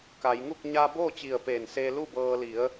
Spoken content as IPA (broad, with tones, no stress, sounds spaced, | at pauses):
k a˩˧ j ŋ u˥˨ k̚ ɲ aː˧ b oː˥˨ t͡ɕ i˧˩ ə̯ p eː˧˩ n s eː˧ l u˥˨ b ɤː˧ l i˩˧ ə̯